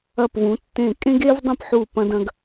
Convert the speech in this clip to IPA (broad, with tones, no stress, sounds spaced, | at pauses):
ɐ˥˧ p v ũ˧˥ tː ẽ˥˧ kʼ ẽ˥ ɡ e˥ v dˤ ə̃˥˧ p ħ u˥˧ p ɐ̃˥ d ɐ̃˥ ɡ